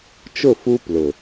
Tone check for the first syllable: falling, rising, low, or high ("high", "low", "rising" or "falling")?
falling